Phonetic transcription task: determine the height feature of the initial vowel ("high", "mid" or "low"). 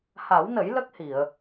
low